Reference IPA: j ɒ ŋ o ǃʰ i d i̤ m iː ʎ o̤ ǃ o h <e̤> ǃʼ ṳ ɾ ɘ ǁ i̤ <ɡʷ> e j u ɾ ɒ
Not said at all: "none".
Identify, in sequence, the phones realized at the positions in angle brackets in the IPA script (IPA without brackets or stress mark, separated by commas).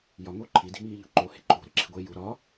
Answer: e̤, ɡʷ